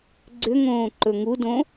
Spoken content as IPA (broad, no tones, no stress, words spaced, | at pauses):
ɡ͡ǀʏŋõː ǃɵŋudõ